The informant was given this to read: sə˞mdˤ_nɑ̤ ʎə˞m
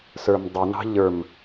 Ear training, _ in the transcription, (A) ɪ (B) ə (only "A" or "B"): A